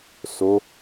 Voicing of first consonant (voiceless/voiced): voiceless